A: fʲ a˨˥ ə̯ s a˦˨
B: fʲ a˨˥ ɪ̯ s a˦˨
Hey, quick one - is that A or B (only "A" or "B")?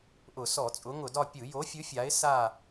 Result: B